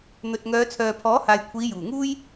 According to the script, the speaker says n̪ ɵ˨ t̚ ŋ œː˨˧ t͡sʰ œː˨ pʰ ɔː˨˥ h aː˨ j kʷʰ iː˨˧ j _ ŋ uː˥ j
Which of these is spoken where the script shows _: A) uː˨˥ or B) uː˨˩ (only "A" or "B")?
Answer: B